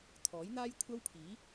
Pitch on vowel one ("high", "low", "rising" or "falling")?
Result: rising